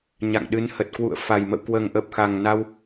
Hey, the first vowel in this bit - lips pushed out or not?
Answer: no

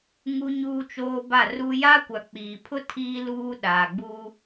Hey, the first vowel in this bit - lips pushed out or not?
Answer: yes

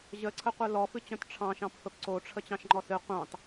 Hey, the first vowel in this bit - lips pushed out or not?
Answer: no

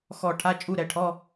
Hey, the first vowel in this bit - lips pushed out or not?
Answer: yes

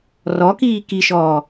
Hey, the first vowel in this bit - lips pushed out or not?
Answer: yes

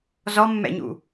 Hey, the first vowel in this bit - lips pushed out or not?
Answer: yes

